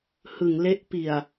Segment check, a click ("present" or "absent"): absent